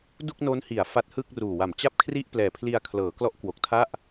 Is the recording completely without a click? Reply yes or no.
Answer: yes